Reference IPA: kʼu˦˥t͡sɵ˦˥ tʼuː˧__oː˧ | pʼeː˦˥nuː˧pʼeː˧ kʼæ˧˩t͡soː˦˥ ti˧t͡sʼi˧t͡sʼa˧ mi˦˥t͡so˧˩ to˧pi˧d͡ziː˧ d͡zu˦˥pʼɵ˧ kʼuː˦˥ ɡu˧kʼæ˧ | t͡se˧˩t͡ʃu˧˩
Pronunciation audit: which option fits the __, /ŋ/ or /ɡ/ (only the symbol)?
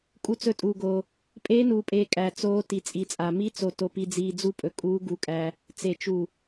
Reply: ɡ